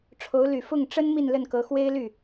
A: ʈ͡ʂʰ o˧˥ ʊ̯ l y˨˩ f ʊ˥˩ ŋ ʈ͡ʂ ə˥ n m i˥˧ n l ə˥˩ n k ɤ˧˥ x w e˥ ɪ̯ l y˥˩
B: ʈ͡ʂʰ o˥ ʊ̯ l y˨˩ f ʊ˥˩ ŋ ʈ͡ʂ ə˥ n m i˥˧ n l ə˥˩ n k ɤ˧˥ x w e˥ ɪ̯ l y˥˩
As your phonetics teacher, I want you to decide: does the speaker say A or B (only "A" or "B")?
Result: A